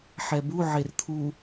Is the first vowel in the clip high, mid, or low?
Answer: mid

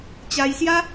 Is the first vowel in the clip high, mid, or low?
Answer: low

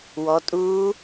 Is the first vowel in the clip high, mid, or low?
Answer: mid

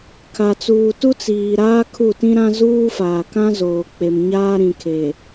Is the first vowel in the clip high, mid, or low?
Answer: low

